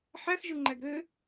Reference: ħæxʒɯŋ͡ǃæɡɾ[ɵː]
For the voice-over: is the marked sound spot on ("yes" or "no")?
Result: no